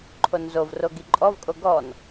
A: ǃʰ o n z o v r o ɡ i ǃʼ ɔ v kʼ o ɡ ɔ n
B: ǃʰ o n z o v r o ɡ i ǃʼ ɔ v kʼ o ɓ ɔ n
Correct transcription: A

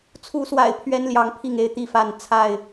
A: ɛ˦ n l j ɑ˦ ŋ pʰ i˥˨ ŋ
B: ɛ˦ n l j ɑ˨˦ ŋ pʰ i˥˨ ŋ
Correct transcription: B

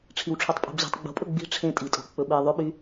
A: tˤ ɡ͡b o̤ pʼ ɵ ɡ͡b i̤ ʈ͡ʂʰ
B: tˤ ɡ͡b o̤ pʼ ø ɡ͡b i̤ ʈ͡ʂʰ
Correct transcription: A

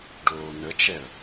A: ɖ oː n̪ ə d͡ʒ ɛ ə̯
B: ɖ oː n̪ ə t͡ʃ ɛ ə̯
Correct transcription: B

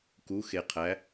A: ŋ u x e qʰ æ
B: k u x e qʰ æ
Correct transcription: B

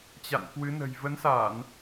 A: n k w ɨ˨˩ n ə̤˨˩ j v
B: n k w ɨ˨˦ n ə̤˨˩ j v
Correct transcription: B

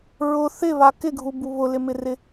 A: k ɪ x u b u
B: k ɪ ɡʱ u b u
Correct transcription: B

